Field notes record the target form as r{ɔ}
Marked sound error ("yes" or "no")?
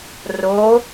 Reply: yes